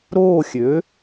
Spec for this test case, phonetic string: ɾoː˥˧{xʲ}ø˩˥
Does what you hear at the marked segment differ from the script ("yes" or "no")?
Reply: no